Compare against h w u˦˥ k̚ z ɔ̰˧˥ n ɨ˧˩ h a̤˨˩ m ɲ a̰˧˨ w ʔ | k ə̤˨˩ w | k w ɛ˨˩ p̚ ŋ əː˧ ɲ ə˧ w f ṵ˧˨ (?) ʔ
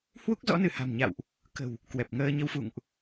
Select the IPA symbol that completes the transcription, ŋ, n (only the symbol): ŋ